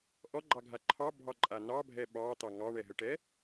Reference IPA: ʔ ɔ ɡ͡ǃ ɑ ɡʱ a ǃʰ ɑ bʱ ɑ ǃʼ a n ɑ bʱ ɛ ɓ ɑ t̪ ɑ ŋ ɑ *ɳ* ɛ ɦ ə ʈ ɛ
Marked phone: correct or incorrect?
correct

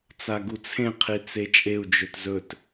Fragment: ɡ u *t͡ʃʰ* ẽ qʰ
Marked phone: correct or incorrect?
incorrect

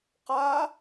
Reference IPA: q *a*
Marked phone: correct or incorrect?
correct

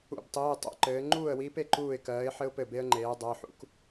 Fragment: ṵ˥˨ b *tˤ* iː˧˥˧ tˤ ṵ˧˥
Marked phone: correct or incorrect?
correct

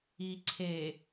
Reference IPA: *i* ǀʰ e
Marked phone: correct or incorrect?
correct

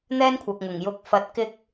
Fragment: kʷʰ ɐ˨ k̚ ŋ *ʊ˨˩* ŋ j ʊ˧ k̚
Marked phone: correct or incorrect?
correct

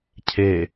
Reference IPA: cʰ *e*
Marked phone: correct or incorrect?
correct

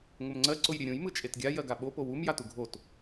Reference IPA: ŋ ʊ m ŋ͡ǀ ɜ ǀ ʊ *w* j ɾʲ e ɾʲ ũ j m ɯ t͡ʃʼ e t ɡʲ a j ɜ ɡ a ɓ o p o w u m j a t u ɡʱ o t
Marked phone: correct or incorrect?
incorrect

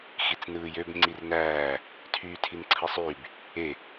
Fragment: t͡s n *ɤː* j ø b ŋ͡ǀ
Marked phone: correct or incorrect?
incorrect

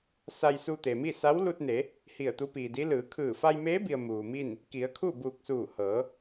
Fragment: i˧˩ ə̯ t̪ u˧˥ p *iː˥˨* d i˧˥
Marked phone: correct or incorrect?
incorrect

